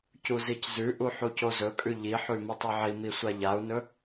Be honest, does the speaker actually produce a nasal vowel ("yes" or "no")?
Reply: no